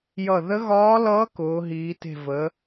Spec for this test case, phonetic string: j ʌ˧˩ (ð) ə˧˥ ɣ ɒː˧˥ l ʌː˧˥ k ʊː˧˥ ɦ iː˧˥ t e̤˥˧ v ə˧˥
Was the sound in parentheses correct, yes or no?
yes